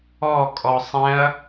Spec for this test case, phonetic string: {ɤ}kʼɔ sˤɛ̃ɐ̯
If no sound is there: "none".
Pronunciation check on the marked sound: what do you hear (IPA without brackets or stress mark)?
ɔ